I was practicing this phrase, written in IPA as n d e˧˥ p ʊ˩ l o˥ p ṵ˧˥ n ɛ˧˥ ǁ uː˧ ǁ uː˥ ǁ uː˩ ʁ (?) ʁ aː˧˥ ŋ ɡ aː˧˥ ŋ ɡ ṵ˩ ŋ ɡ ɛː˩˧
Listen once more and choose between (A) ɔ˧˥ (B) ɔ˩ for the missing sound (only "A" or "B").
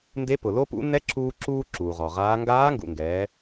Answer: B